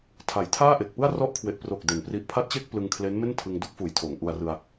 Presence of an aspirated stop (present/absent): present